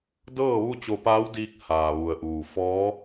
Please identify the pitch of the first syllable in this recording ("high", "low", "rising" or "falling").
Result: falling